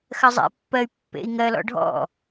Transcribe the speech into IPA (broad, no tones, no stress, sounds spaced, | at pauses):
x ɜ zˤ ḛ pː ɜ y̯ pː ḛ i̯ ŋ ɜ l ɔ̰ ɖʱ ɔ̰